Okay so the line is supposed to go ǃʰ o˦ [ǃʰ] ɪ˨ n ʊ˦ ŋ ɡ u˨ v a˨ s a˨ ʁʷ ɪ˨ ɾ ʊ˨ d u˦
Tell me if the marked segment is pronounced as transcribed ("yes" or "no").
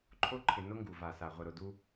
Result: yes